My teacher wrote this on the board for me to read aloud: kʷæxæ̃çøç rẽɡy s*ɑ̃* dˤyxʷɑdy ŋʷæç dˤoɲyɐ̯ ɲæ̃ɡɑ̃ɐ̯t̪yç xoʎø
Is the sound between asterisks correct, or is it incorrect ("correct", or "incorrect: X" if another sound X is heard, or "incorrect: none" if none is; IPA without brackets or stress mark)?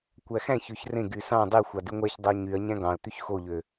correct